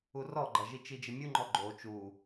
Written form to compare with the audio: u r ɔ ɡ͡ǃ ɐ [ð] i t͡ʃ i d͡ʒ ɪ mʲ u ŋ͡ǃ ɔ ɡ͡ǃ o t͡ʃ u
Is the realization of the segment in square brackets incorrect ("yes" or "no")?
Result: yes